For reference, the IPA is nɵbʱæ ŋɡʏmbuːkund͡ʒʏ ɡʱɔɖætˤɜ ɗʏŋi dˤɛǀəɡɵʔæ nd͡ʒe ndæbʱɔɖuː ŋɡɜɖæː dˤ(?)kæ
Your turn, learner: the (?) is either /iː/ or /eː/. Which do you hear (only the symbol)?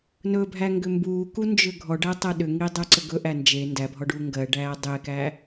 eː